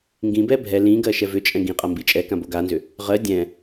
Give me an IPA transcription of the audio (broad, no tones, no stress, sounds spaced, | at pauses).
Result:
ŋ ɡ ĩ b ɛ bʱ ɛ l ĩ ɡ ɜ ʃ ɛ v ʏ t͡ʃʼ ɛ̃ ɡ ĩ qʼ a m b i t͡ʃʼ ɛ k ã b o ɡ a n z ʏ | ʁ ɜ dʲ ɛ̃